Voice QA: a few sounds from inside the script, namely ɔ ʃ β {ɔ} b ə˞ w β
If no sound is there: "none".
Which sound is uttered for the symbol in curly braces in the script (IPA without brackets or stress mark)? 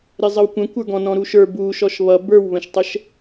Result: ʌ